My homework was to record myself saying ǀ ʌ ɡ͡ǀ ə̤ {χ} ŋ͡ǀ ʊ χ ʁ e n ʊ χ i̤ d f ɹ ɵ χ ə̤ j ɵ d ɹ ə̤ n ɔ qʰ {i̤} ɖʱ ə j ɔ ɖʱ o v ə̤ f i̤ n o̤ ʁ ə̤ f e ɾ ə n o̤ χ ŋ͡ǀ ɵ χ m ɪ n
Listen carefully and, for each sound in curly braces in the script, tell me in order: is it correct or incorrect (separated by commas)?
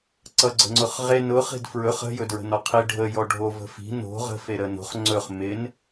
incorrect, incorrect